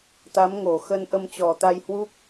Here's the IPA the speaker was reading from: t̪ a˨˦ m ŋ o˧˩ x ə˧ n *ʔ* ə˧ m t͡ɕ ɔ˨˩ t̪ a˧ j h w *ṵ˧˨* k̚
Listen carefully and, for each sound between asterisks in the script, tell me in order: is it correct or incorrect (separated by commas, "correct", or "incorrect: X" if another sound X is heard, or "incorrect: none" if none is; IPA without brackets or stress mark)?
correct, incorrect: u˦˥